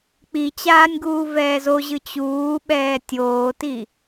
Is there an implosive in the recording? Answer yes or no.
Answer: yes